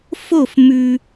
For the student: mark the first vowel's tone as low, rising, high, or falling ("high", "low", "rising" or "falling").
falling